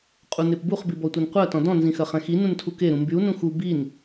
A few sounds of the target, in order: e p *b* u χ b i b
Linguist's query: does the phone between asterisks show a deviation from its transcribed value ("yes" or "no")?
no